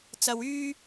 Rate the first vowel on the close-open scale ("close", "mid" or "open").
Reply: open